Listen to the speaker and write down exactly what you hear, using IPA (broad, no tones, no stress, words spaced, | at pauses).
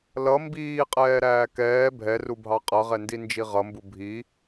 lʌ mbiːqʼɛːɾæː kɛː bʱɛrubʱɑ qʼʌʁɛndind͡ʒi ʁʌmbu bʱi